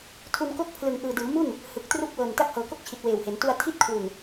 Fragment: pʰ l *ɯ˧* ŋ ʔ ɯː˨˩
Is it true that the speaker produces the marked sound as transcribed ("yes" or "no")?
no